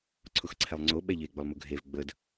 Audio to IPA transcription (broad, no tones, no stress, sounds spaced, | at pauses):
ǀʰ ʊ x ǀʰ ɛ lˠ ŋ͡ǀ o ɓ ɛ ʎ e ɡ͡b ʊ lˠ m ʊ ɡʱ e v ɡ͡b ə d